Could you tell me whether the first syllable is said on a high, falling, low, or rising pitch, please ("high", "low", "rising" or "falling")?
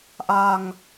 low